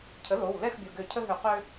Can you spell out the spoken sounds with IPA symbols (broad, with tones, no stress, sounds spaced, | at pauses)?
cʰ ə˩˥ l o˩˧˩ w l ɛ˥˨ x bʲ o˩˧˩ ɡ ø˧˩˧ cʰ ə˦ ɦ ø˧˩˧ q ø˦